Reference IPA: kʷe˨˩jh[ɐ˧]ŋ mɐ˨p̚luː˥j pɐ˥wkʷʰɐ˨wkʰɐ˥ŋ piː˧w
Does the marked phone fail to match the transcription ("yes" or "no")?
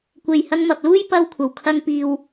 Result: no